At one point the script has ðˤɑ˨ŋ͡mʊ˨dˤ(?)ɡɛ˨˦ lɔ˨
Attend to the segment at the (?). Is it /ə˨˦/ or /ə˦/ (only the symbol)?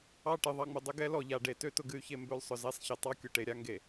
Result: ə˨˦